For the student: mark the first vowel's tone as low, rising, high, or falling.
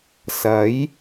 rising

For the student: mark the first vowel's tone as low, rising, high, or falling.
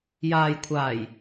low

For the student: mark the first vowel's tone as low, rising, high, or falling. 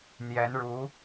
rising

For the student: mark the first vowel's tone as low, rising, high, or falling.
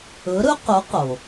rising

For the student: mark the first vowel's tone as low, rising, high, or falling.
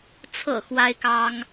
low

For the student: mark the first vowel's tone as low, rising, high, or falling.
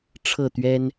falling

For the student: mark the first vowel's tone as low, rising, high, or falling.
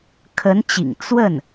rising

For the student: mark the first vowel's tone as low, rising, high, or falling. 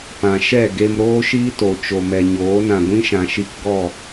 low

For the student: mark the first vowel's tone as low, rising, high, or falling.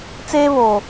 high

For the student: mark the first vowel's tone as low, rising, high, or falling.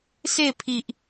falling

